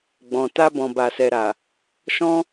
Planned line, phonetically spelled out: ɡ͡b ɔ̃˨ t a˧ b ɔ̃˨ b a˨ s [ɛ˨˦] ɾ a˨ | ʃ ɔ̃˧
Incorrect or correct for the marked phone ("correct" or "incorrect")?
incorrect